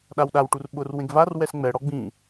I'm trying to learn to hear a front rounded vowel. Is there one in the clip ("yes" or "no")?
no